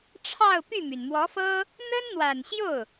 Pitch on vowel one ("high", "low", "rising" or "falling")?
falling